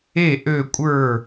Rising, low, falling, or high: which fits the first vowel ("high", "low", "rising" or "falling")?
falling